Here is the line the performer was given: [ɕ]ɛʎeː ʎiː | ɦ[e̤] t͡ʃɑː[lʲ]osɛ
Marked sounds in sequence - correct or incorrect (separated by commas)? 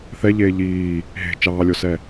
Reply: incorrect, correct, correct